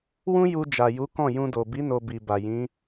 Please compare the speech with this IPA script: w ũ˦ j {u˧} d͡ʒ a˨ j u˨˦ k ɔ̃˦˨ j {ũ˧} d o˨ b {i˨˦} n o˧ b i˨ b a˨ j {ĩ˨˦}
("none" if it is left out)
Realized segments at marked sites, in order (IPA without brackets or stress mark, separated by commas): u˧, ũ˧, i˨˦, ĩ˨˦